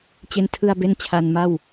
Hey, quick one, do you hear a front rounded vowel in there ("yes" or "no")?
no